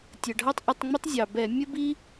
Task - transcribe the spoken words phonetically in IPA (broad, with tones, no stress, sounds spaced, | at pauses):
tʲ ə˩ ɖʱ ɑ˥ tˤ ʔ ɪ˧˩˧ tˤ ŋ͡m ɪ˥ tˤ zʲ ɑ˩ b ɛ˧˩˧ mʲ ə˥ b i˥